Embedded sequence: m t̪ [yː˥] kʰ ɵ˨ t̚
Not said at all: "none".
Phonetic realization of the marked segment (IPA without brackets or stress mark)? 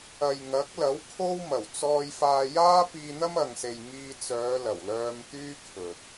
yː˥